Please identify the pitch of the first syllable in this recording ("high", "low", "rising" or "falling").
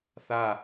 falling